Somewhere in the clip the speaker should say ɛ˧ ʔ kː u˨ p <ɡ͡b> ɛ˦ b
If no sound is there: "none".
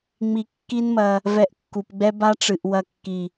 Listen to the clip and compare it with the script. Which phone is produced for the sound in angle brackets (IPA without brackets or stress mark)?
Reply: ɡ͡b